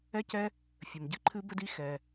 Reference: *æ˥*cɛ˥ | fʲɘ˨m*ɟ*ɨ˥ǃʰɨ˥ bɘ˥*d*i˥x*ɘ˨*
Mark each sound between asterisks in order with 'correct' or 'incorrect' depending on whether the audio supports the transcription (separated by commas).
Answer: incorrect, correct, correct, incorrect